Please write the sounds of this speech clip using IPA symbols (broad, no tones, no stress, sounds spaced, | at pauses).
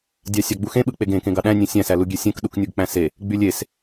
dʲ ɑ sʲ ɑ ɡ͡b u x ẽ ɓ ɯ k͡p e ɡ ẽ k ẽ ɡ ɑ ɗ æ̃ nʲ ẽ sʲ æ̃ s æ l u ɡʲ e sʲ ẽ k ɗ u k nʲ u ɡ k͡p æ̃ s e | ɡ͡b y lʲ e s